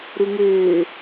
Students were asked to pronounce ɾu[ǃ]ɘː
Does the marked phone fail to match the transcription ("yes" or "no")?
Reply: yes